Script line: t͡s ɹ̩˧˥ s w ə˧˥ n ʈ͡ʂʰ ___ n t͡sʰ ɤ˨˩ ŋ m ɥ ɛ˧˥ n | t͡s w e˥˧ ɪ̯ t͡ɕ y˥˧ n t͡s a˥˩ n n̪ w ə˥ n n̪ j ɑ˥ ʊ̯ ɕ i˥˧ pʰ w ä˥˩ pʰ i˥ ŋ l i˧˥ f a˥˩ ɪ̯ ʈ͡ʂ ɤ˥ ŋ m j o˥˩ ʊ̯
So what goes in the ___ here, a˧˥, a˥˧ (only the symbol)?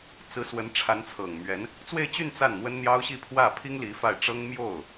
a˧˥